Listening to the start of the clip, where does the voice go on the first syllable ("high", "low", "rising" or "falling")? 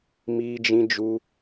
high